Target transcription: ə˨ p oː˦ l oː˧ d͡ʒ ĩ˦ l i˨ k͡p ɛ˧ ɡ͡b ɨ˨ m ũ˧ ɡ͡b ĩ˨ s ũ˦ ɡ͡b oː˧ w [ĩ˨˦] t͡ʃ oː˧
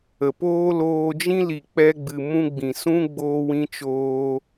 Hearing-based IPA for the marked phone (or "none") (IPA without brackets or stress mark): ĩ˧